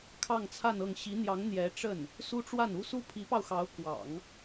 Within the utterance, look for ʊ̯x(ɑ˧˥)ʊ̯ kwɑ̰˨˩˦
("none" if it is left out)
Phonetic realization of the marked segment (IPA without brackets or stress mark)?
ɑ˧˥